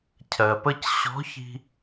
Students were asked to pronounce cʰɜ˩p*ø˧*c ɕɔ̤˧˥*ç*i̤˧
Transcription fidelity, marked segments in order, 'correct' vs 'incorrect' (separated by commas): incorrect, correct